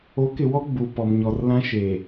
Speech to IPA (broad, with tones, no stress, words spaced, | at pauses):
o˨˦kɪ˨wɔ˦ ɡ͡bu˨pɔ˨mɲɔ˨r lã˦ʃeː˨